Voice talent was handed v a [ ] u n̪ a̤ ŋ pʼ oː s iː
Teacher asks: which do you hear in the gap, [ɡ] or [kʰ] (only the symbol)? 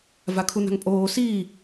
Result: kʰ